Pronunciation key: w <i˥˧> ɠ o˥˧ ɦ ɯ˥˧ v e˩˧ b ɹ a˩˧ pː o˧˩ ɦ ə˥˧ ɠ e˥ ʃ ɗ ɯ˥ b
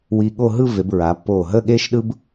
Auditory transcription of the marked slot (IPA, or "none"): i˧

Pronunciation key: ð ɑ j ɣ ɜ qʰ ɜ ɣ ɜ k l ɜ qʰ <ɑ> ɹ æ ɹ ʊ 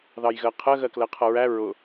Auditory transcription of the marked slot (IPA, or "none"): ʌ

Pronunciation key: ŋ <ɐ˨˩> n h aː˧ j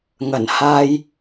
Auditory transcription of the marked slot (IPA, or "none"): ɐ˨˩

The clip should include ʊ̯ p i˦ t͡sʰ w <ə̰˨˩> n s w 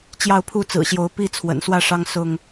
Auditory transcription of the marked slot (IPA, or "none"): ə̰˨˩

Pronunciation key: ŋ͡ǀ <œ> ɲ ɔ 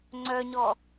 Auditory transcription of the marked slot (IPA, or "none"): œ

